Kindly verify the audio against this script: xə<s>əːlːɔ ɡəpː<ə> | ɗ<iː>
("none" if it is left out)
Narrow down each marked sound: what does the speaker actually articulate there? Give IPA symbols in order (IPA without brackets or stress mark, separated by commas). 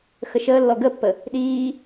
ʃ, ə, iː